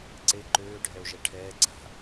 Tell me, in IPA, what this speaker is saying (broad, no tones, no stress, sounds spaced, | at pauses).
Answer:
ǀ e ǃ øː ɖʱ ɛ o̯ ʒ ɛ ʈʰ ɛː ǀ a̤